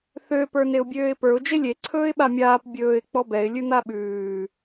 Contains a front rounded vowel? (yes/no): yes